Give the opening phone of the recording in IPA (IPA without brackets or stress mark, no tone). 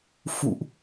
f